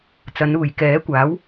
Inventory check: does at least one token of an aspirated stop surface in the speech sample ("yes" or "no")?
no